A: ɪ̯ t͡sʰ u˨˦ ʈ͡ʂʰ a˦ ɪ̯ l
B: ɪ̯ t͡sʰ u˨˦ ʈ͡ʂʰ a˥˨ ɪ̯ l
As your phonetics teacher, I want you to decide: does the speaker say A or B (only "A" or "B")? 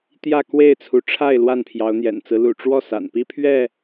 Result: B